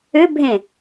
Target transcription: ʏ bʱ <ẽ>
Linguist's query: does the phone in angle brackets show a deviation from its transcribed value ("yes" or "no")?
no